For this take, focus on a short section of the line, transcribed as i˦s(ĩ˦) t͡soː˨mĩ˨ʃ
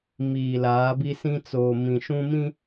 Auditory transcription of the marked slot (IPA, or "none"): ĩ˦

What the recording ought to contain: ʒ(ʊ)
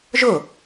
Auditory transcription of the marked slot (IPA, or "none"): ʊ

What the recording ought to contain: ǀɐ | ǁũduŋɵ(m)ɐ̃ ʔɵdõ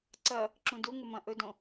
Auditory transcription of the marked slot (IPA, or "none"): m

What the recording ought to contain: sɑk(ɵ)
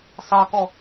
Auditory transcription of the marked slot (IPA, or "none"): ɔ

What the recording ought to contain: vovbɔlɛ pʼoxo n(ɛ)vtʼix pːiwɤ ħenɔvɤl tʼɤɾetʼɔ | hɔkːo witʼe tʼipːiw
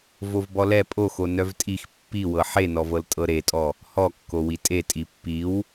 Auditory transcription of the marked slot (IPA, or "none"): œ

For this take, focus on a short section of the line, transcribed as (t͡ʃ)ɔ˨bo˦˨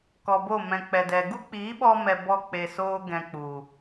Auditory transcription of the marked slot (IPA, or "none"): k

